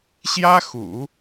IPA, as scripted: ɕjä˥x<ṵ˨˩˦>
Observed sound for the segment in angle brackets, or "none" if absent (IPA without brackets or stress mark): ṵ˨˩˦